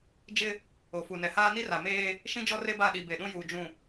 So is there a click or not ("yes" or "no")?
no